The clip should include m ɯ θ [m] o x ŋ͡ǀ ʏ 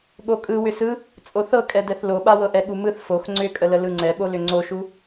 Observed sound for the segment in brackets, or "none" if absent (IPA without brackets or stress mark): f